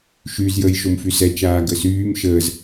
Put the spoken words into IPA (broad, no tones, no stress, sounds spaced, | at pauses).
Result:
ʃ y z j əː j ʃ o m f y s ɛ t͡ʃ aː ɡ ə s yː m ʃ əː z